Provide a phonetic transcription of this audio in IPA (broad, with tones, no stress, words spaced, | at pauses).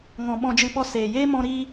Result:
ŋɔ̃˨ ɓɔ̃˧d͡ʒɨ˧ɓɔ˧ seː˨jeː˦ mɔ̃˧ɾiː˧